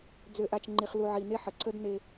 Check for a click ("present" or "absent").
present